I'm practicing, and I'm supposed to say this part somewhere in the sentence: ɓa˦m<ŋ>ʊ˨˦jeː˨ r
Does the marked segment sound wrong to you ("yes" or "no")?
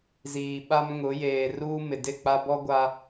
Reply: no